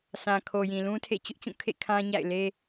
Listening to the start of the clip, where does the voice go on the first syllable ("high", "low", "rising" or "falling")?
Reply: low